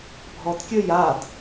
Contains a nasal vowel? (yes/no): no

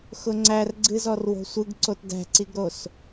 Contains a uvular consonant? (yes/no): no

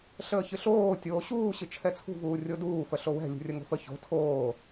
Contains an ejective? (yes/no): no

